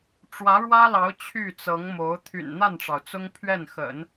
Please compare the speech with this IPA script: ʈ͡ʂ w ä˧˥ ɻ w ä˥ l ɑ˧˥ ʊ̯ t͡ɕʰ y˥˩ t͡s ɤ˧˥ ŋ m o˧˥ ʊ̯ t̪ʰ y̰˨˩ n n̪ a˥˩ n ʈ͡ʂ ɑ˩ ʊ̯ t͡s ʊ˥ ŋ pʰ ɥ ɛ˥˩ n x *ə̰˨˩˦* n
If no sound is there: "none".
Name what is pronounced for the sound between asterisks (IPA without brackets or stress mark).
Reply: ə̰˨˩˦